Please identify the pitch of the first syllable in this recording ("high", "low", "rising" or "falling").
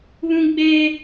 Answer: high